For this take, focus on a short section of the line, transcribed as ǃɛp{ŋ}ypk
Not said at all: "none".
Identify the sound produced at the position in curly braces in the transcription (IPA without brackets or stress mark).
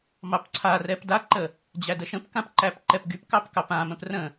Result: ɡ